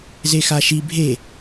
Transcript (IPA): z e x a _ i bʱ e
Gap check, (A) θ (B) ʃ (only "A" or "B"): B